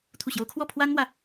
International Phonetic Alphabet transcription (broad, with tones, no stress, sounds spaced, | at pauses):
t̪ʰ u˥˩ ɕ j o˥ ʊ̯ kʰ w ɔ˥˩ pʰ w a˥ n m w ä˨